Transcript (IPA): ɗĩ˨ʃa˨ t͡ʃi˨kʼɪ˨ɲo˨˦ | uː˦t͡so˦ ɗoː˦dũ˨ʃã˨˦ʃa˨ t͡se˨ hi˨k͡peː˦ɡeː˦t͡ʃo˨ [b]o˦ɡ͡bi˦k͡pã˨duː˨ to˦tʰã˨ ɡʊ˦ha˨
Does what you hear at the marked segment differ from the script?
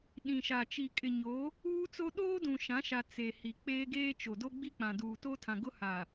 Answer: yes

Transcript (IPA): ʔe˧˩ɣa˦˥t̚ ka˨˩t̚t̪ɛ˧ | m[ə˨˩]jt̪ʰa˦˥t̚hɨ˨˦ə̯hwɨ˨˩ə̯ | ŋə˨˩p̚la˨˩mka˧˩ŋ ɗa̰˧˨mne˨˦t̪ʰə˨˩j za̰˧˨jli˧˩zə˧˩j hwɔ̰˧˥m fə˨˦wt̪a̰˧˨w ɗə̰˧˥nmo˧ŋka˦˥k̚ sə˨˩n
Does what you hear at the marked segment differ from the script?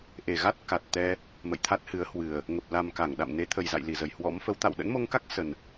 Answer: yes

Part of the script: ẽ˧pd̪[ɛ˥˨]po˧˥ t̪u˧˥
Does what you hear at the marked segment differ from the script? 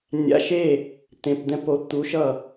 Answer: yes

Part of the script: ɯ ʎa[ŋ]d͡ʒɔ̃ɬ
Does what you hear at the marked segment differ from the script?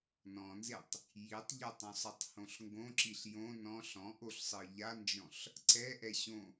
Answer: yes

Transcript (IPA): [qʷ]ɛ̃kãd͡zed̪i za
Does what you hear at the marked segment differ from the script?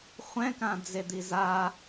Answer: yes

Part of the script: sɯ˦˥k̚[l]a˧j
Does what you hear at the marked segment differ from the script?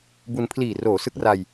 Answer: yes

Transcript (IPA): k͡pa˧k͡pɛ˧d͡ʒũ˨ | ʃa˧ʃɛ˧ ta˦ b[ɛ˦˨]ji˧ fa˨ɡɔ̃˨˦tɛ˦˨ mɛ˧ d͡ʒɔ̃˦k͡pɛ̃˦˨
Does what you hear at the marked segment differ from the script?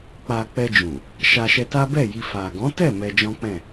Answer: no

